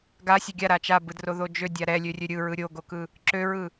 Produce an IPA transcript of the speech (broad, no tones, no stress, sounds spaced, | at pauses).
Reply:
ɡ a sʲ e ɡʲ a ɾ a t͡ʃ a b ɯ d r o ð o d͡ʒ ø dʲ a ɾ ɛ lʲ ø rʲ ø ɾʲ ɯ ɹ ɯ ɾʲ o ɡ o k ɯ | ǁ ø ɹ ɯ